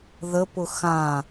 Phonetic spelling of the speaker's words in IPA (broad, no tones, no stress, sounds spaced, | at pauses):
ð ə p ʊ x ã